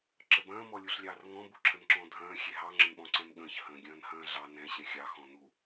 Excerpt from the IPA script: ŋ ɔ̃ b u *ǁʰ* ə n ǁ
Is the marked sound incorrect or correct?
correct